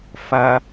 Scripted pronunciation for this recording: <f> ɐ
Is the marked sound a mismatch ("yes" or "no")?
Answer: no